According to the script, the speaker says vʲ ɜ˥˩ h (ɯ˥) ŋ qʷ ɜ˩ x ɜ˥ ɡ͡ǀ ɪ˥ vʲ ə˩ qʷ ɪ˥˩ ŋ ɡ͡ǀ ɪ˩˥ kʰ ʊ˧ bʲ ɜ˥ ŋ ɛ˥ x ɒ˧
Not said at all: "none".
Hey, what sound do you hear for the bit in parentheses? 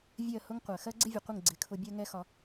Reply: ʊ˥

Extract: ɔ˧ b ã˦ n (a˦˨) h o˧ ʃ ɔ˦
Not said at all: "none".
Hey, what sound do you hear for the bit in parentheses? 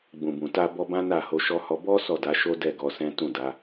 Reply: a˦˨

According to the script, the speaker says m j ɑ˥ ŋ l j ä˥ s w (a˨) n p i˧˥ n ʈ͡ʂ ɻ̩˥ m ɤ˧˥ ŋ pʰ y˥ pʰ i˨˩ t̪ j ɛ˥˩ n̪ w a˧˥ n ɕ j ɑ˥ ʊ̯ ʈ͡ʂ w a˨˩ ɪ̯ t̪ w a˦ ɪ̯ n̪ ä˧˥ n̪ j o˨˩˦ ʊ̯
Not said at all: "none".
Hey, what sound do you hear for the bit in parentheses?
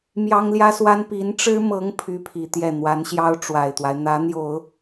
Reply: a˥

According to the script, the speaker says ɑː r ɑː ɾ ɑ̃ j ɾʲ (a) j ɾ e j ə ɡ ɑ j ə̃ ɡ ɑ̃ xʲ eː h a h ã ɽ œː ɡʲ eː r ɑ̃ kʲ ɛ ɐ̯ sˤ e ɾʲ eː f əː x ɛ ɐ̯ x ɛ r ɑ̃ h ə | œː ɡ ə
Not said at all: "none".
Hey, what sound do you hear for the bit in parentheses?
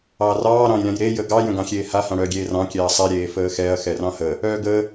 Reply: ã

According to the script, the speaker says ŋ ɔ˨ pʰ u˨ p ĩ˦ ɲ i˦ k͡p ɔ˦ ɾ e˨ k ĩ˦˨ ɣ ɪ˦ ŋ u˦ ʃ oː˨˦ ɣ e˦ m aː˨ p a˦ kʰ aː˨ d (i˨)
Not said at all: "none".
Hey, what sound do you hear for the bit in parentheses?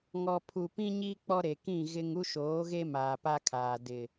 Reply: ɪ˨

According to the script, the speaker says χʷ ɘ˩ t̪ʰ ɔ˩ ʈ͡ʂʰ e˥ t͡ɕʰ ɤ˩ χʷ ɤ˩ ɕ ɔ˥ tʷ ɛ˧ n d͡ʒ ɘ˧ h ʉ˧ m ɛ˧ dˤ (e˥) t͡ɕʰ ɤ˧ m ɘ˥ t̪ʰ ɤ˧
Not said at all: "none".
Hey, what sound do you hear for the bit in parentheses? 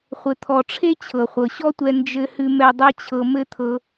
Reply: e˥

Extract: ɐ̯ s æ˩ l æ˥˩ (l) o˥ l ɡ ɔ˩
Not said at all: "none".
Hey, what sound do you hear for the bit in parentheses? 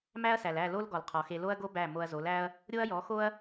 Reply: l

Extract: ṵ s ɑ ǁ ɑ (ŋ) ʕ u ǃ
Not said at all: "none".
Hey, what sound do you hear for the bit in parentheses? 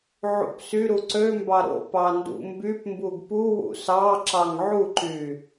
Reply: ŋ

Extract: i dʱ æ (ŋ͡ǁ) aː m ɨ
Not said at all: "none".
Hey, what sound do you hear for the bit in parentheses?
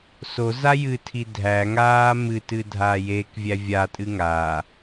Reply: ŋ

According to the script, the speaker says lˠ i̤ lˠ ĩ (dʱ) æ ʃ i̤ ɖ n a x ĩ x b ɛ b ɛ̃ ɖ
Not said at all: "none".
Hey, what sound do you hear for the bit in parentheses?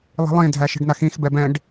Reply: dʱ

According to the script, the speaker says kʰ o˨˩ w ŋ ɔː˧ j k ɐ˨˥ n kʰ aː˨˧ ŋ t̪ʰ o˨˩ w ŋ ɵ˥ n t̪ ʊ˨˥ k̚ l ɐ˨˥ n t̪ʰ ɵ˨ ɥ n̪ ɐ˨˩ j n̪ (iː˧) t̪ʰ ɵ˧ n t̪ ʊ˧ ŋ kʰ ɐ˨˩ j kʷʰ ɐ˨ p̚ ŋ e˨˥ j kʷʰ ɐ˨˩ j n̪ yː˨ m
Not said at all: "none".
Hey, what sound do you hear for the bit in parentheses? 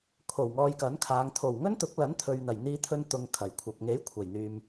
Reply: iː˧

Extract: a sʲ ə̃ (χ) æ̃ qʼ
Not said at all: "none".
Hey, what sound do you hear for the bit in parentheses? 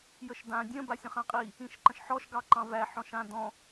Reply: χ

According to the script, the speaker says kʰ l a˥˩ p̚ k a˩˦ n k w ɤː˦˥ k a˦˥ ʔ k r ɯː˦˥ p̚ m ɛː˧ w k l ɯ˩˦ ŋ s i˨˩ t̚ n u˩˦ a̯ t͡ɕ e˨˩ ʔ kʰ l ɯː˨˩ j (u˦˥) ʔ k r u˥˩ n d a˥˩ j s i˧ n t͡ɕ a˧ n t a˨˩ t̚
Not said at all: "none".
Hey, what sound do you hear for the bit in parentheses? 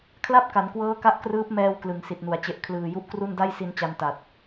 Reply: u˦˥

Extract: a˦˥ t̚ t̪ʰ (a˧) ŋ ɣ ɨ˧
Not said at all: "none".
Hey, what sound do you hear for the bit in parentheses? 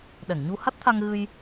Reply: a˧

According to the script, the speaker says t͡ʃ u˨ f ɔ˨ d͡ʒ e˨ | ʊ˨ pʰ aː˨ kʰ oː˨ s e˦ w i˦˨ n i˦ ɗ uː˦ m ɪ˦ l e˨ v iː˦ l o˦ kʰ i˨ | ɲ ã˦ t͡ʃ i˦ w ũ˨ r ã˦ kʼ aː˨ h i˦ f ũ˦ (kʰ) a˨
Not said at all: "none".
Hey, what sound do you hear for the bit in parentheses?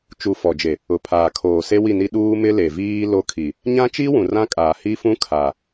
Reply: kʰ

